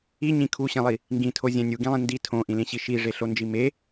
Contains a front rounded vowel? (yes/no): no